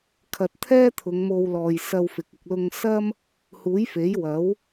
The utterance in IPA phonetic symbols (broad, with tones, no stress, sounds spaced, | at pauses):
kʰ ɐ˨ t̚ t̪ʰ ɛː˥ t̪ʰ ʊ˨˧ ŋ m o˧ w l ɔː˨ j s ɐ˧ w f ɪ˨˥ k̚ ɪ˧ k̚ l ʊ˧ ŋ s ɐ˥ m | h uː˨˥ j f e˨˥ j w ɐ˨˥ w